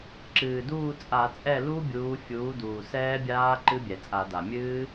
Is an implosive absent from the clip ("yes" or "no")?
yes